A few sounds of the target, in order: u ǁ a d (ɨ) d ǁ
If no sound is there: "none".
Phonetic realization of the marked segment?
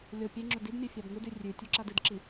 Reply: ɨ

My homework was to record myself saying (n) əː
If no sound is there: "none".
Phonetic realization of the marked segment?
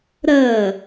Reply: ɾ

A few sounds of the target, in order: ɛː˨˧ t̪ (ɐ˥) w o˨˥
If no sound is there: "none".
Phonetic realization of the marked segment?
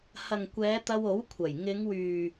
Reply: ɐ˧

